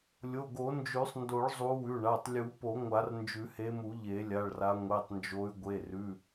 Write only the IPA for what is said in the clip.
lʲ o˩˧˩ ɡ o˨˩˦ n d͡ʒ ʉ˨˩˦ sˤ n d o˨˩˦ ɭ zˤ u˨˦ w ʉ˩˧˩ ɳ a˩˧˩ tˤ lʲ u˨˩˦ p o˨˩˦ ŋʷ a˨˩˦ r n d͡ʒ ʉ˨˩˦ h e˨˦ m u˨˩˦ ʎ e˨˩˦ lʲ a˩˧˩ ɭ r a˨˦ ŋʷ e˩˧˩ tˤ n d͡ʒ o˨˦ y̯ ɡʷ e˩˧˩ r ʉ˩˧˩

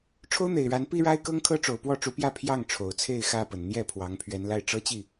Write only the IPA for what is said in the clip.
ʈ͡ʂʰ o˦ ʊ̯ n̪ e˨˩ ɪ̯ ɻ a˨˦ n p i˦ ɻ a˦ ɪ̯ k ɤ˦ ŋ kʰ ɤ˦ ʈ͡ʂ o˨˩ ʊ̯ p w ɔ˥˨ ʈ͡ʂ u˨˦ p j ä˥˨ pʰ j ɑ˥˨ ŋ ʈ͡ʂʰ o˨˩ ʊ̯ t͡sʰ e˥˨ ɪ̯ x ä˥˨ p ə˨˩ n n̪ j ɛ˥˨ pʰ w ɑ˨˦ ŋ pʰ ɥ ɛ˨˦ n l a˧ ɪ̯ ʈ͡ʂ ɤ˦ t͡ɕ i˥˨

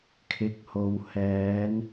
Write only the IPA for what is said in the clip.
kʰ ɪ˨˥ k̚ h o˨ w h ɛː˨˧ n

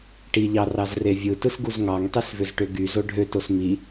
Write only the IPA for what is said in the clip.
ʈ i ʎ ɑ r ɑ z r e vʲ ɯ t ɯ s ɡ u z ŋ ɑ ŋ tˤ y s v ø z ʈ ø ɡ y z o ɖʱ ø t o s m i

